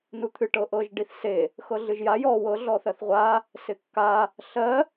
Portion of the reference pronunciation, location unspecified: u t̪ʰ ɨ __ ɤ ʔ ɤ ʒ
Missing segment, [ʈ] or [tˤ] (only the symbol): ʈ